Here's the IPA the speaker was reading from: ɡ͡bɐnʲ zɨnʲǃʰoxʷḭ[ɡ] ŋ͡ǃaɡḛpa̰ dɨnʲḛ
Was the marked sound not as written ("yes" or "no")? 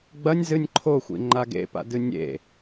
yes